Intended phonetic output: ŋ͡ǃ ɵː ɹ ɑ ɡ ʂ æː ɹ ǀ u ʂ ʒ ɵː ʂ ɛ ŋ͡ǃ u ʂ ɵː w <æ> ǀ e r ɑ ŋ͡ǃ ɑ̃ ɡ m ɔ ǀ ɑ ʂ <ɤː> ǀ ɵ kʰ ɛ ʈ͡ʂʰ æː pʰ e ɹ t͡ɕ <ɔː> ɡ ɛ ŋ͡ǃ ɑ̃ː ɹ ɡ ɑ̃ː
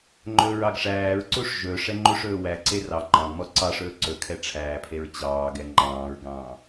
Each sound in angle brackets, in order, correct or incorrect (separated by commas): correct, incorrect, incorrect